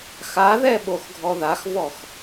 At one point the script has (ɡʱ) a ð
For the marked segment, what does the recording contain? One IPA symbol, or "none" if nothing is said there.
x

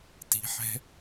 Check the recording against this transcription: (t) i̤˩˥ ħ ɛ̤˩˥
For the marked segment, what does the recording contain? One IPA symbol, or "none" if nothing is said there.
t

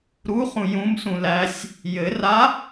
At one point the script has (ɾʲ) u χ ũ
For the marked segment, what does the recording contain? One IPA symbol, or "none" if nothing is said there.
ɾ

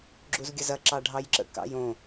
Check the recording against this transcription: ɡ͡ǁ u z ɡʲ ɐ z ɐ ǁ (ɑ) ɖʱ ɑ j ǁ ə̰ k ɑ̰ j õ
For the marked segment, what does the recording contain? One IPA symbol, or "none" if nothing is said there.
ɑ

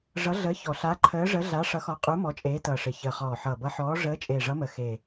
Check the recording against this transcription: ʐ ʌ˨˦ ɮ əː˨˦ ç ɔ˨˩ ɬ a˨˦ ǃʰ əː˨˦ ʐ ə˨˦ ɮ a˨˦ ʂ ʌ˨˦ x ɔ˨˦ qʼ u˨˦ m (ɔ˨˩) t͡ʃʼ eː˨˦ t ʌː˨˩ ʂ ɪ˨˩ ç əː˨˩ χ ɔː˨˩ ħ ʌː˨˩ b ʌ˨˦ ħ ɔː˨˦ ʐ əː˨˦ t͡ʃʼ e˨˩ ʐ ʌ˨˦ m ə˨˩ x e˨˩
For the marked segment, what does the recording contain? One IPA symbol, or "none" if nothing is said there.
ɔ˨˦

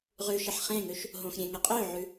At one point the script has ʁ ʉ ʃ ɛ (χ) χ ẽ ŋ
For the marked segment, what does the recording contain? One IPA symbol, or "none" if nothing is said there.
ħ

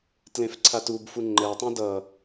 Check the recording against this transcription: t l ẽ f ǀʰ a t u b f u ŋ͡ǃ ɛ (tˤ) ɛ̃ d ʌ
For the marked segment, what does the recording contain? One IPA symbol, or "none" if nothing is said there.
tˤ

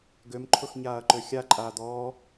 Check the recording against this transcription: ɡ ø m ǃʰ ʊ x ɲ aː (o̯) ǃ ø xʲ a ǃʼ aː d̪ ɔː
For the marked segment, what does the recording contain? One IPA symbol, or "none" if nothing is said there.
ɐ̯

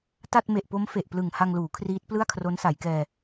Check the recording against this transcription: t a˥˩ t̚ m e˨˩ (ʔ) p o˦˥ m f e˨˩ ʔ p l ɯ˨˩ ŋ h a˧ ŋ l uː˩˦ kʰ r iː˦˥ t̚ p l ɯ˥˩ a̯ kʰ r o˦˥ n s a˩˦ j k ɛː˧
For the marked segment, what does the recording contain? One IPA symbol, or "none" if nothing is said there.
ʔ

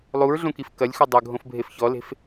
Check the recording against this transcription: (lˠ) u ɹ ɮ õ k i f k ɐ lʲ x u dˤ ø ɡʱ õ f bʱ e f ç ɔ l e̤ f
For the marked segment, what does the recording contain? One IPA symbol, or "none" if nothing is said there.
lˠ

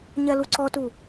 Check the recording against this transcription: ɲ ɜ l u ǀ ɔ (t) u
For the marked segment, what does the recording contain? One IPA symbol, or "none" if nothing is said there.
t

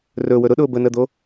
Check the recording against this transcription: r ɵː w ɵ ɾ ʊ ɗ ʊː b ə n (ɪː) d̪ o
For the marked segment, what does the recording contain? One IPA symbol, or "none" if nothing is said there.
əː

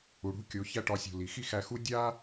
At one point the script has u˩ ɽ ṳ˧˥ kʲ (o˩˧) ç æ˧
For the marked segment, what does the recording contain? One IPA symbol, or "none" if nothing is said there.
o˩˧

